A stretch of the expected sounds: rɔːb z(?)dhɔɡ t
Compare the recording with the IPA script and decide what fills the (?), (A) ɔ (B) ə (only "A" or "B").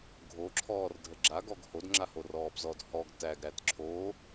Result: A